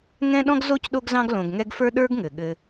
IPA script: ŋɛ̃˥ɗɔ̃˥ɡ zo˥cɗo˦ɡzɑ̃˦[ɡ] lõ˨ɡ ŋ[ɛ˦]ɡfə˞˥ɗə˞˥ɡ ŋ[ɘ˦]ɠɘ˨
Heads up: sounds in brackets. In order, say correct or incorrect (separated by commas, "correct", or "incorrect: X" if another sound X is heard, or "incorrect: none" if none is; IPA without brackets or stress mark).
correct, correct, incorrect: ɘ˩